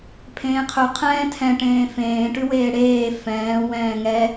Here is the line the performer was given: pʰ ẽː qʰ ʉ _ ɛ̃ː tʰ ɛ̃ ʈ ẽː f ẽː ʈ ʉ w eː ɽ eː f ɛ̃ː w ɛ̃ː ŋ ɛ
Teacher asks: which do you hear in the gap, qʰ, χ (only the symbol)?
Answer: qʰ